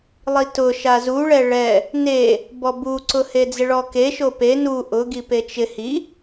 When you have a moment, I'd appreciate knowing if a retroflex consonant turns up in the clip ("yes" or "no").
yes